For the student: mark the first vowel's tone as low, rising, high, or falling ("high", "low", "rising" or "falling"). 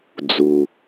low